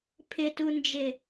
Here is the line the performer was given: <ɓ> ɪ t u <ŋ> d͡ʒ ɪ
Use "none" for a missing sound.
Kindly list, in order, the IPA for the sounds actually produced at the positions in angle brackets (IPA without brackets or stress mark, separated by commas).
pʰ, n